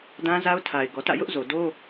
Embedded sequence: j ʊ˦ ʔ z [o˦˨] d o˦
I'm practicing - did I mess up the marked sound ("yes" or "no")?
yes